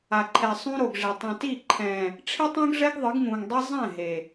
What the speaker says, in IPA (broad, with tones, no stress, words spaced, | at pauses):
a˨ǃʰɛ˨sˤũ˦ ɾo˨ɡʐe˨ tˤɛ̃˨ti˦˨ǃʰɛ̃ː˨ | ʈ͡ʂʰi˦tˤõ˦ɡʐɛ˦ɡ ðˤɯ˨˦ɡŋũː˨ŋdˤi˦ zˤɛ̃˦˨ ɦe˨